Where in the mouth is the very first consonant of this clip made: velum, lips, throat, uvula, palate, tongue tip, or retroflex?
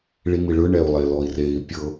retroflex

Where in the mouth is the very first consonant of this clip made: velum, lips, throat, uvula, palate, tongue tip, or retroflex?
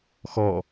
velum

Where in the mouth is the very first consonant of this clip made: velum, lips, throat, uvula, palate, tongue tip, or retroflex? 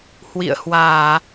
throat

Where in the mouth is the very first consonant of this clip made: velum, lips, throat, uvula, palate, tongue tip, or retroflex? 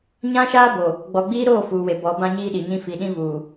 palate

